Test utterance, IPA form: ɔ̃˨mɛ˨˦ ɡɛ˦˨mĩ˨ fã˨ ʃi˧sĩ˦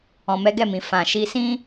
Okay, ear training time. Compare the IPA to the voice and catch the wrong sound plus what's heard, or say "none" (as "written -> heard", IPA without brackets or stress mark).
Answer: none